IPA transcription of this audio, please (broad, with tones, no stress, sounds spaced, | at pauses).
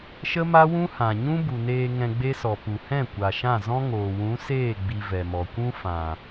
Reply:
ʃ ə˦ m a˦ w ũ˦ h ã˨ ɲ ũ˦ b u˨ n eː˧ ŋ ɛ̃˧ ɡ͡b e˦ s ɔ˨ p u˨ h ɛ̃˦˨ kʷ a˨ ʃ ã˦˨ z ɔ̃˦ ŋ oː˨ w ũ˨˦ s eː˦˨ ɡ͡b i˧ v ɛ˨ m ɔ˨ kʷ ũ˦ f ã˨